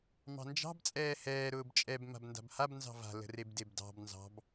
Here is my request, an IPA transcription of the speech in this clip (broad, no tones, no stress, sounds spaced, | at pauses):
m ɑ̤ n d͡ʒ ɑ̤ b t͡sʼ ɛː h ɛː ɾ ʊː b t͡ʃʼ ɛ b m a̤ b n d a̤ b h a b n z ɑ̤ v a̤ l ə̤ r e b d e b d ɑ̤ b n z ɑ̤ b